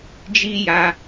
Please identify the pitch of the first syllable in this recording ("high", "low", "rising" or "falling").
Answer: high